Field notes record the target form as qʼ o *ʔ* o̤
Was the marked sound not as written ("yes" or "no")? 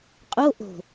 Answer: no